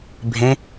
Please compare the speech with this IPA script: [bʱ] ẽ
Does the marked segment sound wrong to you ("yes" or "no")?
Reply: no